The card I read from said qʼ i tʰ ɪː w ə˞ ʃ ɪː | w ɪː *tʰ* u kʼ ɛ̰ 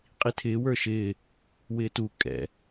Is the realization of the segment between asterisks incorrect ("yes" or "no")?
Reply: yes